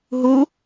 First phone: ɦ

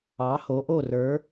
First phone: ɑ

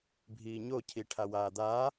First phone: bʱ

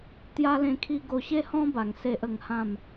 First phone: t̪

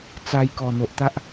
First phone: t͡s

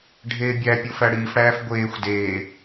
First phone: ɖʱ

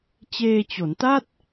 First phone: t͡ɕ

